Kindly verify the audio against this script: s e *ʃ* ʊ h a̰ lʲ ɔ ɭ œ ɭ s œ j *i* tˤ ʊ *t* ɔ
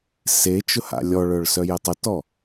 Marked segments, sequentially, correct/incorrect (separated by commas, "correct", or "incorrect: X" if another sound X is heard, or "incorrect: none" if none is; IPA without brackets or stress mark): incorrect: t͡ʃ, incorrect: e, correct